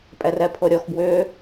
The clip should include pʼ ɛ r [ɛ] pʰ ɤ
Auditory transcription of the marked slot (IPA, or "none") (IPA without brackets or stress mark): ɛ